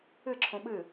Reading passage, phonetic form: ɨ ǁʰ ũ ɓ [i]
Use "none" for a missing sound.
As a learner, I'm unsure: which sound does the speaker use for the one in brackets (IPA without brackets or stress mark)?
ɨ